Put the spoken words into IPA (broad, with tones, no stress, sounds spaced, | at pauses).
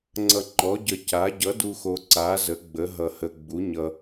ŋ͡ǀ ʌ˧ ŋ͡ǃ ɔ˨˥ ɟ ə˧ c a˨˥ ɟ ʌ˨˥ d u˧ x o˧ ǀ a˨˥ z ə˨˥ ɡ͡b ə˨˥ ɦ ʌ˧ h ə˧ ɡ͡b u˨˥ ɲ ʌ˧